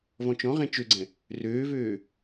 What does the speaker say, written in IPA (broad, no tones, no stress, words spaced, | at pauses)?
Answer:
vɔ̃t͡ʃɔ̃ ʁẽt͡ʃøɡ͡ǀɛ̃ | røːvøː